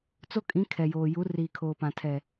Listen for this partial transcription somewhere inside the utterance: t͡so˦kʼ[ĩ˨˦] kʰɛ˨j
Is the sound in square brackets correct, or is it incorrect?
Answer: correct